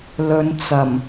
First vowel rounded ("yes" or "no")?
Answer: yes